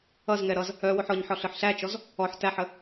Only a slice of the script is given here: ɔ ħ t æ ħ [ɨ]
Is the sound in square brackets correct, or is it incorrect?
incorrect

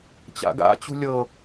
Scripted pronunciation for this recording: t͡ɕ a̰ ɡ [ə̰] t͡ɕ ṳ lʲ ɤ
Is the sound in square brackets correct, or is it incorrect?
incorrect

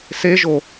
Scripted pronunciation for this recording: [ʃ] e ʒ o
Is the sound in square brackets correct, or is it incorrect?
incorrect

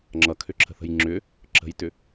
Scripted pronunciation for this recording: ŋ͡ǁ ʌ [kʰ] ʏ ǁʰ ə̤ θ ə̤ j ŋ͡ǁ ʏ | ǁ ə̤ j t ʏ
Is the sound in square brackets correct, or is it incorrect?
correct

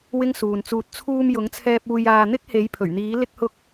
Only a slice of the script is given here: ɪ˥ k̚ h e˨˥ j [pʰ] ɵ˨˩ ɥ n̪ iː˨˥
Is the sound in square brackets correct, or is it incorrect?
correct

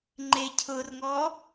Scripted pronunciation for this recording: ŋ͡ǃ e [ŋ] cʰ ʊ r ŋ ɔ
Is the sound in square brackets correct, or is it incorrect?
incorrect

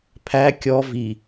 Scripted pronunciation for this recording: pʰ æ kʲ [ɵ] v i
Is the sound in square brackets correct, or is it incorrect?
incorrect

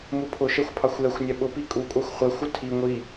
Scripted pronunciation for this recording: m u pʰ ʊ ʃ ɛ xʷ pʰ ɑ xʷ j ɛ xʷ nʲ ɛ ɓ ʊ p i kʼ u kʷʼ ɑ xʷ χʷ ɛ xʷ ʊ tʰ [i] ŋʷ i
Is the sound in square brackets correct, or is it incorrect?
correct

